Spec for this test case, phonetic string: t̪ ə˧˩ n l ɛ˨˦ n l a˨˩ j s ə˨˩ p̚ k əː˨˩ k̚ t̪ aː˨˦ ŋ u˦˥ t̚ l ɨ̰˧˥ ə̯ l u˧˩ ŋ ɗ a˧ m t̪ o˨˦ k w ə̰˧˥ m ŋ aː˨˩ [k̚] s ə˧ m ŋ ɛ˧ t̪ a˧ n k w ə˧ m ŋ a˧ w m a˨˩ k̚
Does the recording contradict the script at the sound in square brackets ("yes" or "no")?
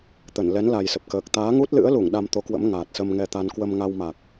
yes